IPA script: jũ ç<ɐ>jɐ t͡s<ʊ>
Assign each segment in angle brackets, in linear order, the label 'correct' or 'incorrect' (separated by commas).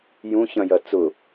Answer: incorrect, correct